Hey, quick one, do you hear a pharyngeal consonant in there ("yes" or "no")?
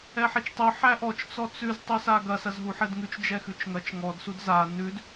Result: yes